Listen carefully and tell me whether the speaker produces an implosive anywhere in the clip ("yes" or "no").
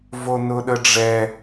yes